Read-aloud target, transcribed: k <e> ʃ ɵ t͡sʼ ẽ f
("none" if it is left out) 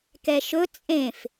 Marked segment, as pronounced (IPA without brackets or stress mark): ɛ